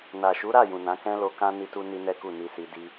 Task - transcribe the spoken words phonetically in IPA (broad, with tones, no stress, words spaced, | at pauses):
na˨ʃu˨˦ɾa˦˨ jũ˨nã˨˦ kɛ̃˦lo˧kã˦ ni˧tu˧ ni˦nɛ˦ku˦˨ ni˧si˧ di˦